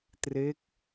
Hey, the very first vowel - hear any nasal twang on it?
no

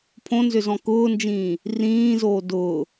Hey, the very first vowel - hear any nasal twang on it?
yes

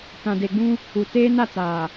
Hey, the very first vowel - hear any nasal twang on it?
yes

